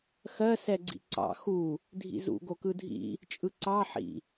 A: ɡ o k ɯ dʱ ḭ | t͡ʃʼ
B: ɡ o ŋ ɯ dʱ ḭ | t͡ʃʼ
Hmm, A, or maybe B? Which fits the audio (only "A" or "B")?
A